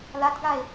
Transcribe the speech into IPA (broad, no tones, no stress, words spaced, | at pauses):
latɡae̯